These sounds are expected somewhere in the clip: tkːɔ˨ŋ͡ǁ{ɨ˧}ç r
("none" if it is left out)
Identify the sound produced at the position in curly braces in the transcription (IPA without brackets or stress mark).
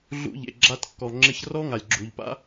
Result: ɪ˧